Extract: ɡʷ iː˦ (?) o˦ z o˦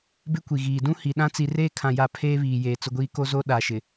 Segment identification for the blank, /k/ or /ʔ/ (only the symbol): k